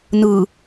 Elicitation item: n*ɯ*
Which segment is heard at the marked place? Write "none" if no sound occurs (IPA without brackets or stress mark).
ɯ